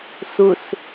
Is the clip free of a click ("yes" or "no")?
yes